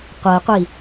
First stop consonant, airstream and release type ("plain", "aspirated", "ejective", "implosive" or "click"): plain